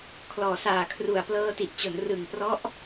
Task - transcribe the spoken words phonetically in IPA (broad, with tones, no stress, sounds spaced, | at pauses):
kʰ l ɔː˨˩ s aː˨˩ kʰ r u˨˩ a̯ p l ɤː˧ t i˨˩ ʔ t͡ɕ o˩˦ n r ɯ˨˩ ŋ p r ɔ˦˥ ʔ